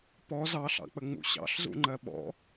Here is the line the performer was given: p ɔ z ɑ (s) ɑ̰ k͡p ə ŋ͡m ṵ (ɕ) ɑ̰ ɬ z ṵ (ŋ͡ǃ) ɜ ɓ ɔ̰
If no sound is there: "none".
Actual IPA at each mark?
ɬ, ɕ, ŋ͡ǃ

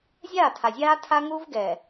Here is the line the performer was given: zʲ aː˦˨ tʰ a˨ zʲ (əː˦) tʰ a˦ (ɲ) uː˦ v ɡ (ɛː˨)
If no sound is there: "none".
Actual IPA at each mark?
aː˦, ŋ, ɛː˨

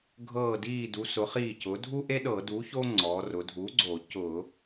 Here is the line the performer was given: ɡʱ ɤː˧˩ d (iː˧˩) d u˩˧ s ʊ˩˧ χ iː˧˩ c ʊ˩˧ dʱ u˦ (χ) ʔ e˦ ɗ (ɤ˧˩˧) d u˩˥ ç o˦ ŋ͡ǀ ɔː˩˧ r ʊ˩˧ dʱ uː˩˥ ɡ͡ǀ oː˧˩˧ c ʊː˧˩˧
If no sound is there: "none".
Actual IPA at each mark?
iː˧˩, none, ɤ˧˩˧

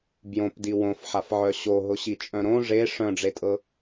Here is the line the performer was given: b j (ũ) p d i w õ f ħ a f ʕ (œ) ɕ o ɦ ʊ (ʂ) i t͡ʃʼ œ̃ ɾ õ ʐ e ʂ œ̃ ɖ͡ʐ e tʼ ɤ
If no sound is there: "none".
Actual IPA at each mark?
õ, œ, ɕ

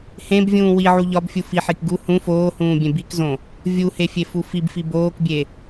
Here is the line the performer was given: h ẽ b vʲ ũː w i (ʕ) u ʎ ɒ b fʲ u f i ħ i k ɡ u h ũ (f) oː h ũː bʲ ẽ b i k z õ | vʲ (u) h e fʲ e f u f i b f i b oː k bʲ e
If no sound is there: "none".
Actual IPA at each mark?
ʕ, f, u

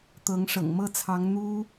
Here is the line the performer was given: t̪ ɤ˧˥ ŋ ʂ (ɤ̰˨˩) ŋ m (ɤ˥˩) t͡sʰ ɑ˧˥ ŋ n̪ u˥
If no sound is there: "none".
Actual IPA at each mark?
ɤ̰˨˩, ɤ˥˩

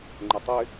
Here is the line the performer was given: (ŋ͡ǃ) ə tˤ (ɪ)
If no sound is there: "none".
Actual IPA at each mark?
ŋ͡ǃ, ɪ

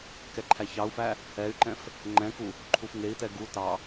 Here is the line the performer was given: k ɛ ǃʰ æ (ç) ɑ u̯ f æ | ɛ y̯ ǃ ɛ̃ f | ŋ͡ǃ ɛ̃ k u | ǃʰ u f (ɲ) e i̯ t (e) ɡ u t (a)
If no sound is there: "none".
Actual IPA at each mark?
ç, ŋ, ɛ, ɑ

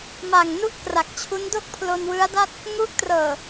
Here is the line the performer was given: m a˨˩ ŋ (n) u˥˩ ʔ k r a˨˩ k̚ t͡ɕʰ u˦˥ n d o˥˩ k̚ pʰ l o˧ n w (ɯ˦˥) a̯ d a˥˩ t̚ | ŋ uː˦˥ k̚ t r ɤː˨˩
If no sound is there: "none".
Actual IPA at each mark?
n, ɯ˦˥

